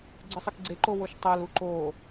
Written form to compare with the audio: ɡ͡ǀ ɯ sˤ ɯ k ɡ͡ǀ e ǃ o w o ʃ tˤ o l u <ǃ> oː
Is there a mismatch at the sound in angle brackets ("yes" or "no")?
no